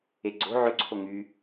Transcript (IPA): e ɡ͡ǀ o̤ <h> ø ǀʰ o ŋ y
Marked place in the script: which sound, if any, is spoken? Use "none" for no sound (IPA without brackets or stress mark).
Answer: ʕ